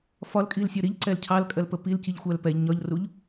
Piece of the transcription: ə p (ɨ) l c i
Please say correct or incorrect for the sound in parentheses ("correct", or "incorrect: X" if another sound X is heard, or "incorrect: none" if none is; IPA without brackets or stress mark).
incorrect: i